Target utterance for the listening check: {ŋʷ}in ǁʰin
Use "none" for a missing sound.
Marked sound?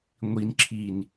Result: ŋʷ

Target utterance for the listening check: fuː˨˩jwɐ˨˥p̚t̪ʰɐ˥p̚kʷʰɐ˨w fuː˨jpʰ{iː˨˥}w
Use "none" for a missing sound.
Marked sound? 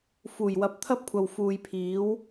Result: iː˨˥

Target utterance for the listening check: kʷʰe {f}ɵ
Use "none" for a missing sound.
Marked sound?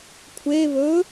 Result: β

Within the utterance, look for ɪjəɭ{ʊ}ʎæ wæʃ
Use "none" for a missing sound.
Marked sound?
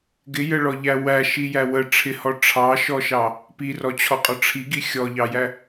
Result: ɔ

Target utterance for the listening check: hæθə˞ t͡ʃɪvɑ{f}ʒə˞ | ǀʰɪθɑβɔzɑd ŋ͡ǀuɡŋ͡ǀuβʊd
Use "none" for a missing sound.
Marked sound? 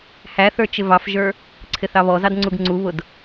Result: f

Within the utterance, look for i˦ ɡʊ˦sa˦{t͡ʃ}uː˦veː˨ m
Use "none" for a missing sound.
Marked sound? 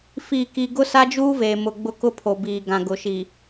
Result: d͡ʒ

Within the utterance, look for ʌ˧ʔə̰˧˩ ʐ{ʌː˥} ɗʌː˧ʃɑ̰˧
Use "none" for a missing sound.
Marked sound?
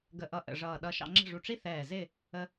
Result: ʌː˧˩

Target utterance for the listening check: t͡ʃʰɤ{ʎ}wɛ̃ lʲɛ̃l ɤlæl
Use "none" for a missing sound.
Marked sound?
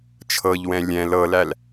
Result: ʎ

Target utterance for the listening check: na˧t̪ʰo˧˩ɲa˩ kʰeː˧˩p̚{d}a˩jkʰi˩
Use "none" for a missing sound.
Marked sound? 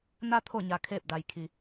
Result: d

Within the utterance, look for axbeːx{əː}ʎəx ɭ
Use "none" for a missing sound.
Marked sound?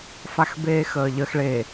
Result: əː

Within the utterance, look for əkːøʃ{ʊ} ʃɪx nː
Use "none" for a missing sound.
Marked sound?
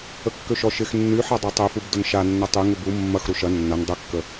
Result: ɔ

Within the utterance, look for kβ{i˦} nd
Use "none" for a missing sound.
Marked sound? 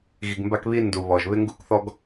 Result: i˦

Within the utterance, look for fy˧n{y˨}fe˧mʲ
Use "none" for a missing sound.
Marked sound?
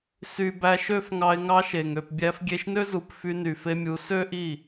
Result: y˨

